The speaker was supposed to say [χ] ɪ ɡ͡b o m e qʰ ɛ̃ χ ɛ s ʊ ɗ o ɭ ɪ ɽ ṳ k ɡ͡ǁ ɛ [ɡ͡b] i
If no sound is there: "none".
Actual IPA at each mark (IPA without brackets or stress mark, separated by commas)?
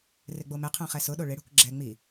r, ŋ͡m